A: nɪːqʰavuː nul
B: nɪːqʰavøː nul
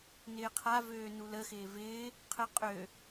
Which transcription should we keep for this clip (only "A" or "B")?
B